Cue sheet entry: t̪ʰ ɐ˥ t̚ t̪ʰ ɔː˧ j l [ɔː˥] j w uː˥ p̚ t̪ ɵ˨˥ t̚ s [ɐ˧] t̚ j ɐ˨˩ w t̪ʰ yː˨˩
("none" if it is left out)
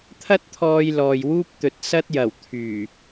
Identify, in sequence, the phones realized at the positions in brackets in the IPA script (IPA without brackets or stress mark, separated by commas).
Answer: ɔː˨, ɐ˥